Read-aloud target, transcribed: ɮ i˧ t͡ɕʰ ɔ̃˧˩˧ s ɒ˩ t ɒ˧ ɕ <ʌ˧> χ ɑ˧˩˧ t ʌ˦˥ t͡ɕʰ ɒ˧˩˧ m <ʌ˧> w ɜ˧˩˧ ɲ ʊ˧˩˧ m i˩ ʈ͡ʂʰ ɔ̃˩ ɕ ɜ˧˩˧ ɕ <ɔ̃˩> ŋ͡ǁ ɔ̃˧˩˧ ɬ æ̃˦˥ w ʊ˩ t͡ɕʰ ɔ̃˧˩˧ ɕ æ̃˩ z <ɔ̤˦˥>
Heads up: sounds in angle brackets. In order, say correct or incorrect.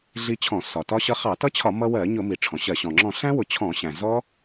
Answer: correct, correct, correct, incorrect: ɔ˦˥

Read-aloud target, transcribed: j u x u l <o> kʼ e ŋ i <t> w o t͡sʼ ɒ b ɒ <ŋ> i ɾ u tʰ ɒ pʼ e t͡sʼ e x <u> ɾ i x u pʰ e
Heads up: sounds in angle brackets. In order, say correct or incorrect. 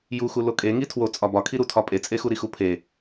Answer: correct, incorrect: tʰ, incorrect: kʰ, correct

